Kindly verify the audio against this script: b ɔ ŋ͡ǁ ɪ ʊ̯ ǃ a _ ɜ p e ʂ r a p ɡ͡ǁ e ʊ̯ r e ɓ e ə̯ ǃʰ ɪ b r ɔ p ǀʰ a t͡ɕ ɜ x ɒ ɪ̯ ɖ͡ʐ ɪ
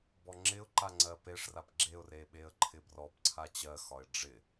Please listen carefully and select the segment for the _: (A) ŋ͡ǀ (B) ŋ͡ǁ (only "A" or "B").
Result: A